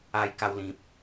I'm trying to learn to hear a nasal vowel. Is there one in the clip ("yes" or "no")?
yes